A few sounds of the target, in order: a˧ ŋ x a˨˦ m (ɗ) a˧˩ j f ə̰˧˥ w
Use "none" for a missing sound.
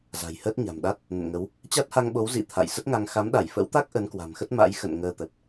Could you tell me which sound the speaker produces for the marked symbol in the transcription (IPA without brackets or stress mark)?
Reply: ɗ